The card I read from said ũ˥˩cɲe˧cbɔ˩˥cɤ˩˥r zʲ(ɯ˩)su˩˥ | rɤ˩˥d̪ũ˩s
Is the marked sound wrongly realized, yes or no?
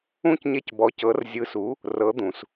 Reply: yes